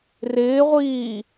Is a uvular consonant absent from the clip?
no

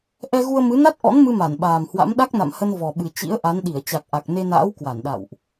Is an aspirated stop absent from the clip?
yes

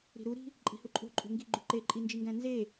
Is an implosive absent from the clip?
yes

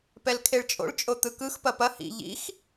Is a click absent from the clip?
yes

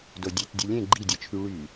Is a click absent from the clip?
no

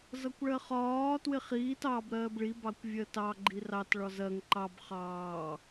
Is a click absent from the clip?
no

